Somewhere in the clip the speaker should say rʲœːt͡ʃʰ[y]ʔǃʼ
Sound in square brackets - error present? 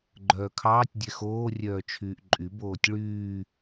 yes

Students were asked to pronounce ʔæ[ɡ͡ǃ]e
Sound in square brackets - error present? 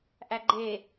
no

